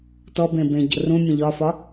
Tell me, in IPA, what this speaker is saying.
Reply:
t ɔ b ẽ b ẽ ɟ ə̰ r ũ mʲ ə̃ ʎ ɒ f ɒ

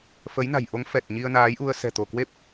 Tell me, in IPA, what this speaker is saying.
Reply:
f ə˨˦ j n a̤˨˩ j ʔ o˨˦ ŋ f ɛ˨˩ t̚ ɲ i˧ ə̯ n aː˨˦ j ʔ u˧ ə̯ s ɛ̤˨˩ t̪ o˧˩ k w e˦˥ p̚

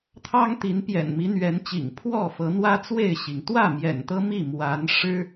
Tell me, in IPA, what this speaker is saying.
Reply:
t̪ʰ ɑ˦ ŋ t̪ i˨˦ n p j ɛ̰˨˩ n m i˨˦ n̪ ɥ ɛ˨˦ n t͡ɕ ḭ˨˩ ŋ pʰ w ɔ˥˨ f ɤ˨˦ n̪ w ä˦ t͡s w e˥˨ ɪ̯ ɕ i˩ ŋ t̪ w ä˥˨ m j ɛ̰˨˩ n t̪ ɤ˦ m i˥˨ m w a˨˦ n ʂ ɻ̩˦

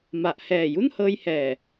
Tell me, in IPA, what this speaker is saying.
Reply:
m a˨˩ ʔ h ɛː˨˩ j u˥˩ n h ɤː˧ j h ɛː˨˩

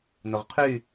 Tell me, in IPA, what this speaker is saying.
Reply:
n ʊ ʁ qʰ y

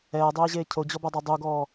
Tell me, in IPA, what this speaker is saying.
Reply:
ɛː dˤ eː ʑ eː cʰ o d͡ʑ ɔ b ɛ dˤ a dˤ u ɡ ɔː

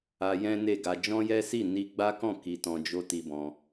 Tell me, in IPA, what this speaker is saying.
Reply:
a˧ j ɛ̃˦ n e˦˨ ɡ a˧ d͡ʒ ɔ̃˦ j ɛ˦ s i˦˨ n i˧ ɡ͡b a˦ k ɔ̃˦˨ k i˧ t ɔ̃˧ d͡ʒ o˦ t i˧ b ɔ̃˧

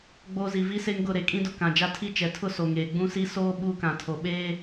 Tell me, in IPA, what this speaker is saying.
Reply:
ɡ͡b oː˦ z i˨ v i˦ s e˦ ŋ ɡ ʊ˦˨ ɾ e˨ kʼ ĩ˦ d ʊ˨ k ã˨ d͡ʒ a˦ tʰ i˦ t͡ʃ ɛ˨ tʰ ʊ˦ s o˨ ŋ eː˨ ɡ͡b ũ˦ s i˦ s oː˦ ɓ uː˦ k ã˨ tʰ o˨ ɓ eː˦

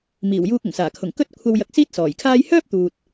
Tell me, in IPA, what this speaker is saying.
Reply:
m iː˨˩ w j uː˧ k̚ ʊ˨˩ ŋ s aː˨˩ kʰ ʊ˨˩ ŋ k ɵ˥ t̚ kʷʰ ɐ˧ w j ɐ˧ k̚ s iː˥ t̚ s ɔː˨˩ j kʰ aː˥ j h œː˥ p̚ t̪ uː˨ t̚

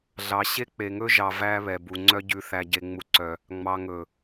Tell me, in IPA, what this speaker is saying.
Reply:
ɮ ɑ˨ ɕ e˦ k͡p e˨ ŋ ɵ˦ ʒ ɑ˨ v æ˦ β ɛ˨ b u˨ ŋ͡ǀ œ˦ ɟ ʉ˨ θ æ˨ ɟ e˨ ŋ͡m u˨ ǀ œ˨ | ŋ͡m ɑ˨ ŋ ɵ˨

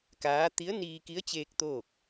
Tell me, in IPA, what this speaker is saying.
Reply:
k aː˧˥ t̪ i˧˥ ə̯ n iː˧ k i˧˥ ə̯ t͡ɕ eː˧ k̚ t̪ oː˥˨ k̚

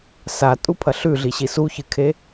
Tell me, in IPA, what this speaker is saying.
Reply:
s a tʼ u pʰ ɐ ɬ ʉ ɮ i ɕ i s u ç ɨ kʰ e

